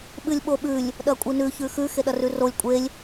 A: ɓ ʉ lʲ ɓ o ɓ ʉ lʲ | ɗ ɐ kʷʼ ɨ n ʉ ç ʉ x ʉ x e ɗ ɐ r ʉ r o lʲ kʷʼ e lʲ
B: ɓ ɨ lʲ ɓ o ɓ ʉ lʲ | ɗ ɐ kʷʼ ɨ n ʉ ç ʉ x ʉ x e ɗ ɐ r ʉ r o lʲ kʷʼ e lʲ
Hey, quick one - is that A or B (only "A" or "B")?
B